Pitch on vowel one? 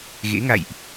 rising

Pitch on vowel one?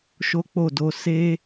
high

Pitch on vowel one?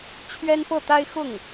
high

